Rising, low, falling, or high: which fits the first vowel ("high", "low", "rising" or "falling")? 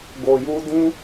low